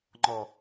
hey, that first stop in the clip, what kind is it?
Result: click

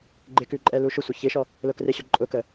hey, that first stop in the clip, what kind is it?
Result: click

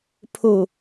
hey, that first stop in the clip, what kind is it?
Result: aspirated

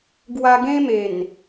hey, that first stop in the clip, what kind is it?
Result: plain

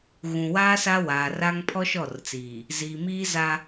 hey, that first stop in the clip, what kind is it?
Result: aspirated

